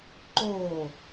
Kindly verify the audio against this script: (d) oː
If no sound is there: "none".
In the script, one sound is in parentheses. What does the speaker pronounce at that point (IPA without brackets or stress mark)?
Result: ǃ